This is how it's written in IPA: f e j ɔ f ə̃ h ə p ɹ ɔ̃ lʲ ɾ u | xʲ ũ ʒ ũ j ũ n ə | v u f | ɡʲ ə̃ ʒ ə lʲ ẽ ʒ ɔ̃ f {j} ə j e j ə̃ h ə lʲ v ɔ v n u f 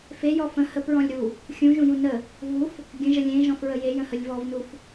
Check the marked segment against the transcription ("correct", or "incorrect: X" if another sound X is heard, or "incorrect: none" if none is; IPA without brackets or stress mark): incorrect: ɹ